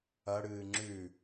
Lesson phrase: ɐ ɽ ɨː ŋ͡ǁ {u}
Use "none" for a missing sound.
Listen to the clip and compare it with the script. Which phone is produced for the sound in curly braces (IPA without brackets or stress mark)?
ʉ